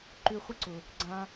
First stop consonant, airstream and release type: click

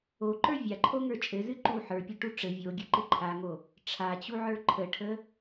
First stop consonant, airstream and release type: click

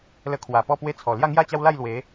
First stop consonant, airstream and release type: aspirated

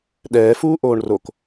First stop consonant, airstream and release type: implosive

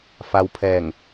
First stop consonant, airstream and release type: aspirated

